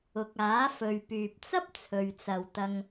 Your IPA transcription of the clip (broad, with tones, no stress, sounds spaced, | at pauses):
ʊ˨ k̚ aː˨˥ f ɵ˨ ɥ p yː˨ p̚ t͡s ɐ˥ p̚ t͡sʰ ɵ˨ ɥ t͡s ɐ˨ w t̪ ɐ˧ ŋ